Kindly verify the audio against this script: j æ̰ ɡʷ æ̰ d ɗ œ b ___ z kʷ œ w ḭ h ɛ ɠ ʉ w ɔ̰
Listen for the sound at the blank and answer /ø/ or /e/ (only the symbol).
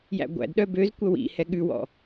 ø